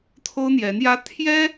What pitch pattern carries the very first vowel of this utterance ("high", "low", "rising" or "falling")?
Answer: high